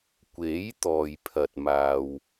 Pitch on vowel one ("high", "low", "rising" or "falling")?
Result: rising